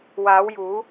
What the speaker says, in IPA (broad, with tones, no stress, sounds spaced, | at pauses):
w aː˨˧ w j uː˨˧